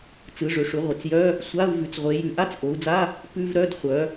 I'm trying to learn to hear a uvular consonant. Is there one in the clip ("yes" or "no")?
yes